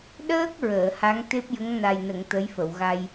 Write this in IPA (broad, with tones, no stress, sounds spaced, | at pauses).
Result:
ɗ əː˦˥ k̚ ɹ əː˨˩˨ h a˧˥ ŋ t̪ e˦˥ p̚ j ə˧˥ ŋ n a˨˩ j n ə˨˩˨ ŋ t̪ ə˧˥ j f ə˨˩˨ w ɣ a˧ j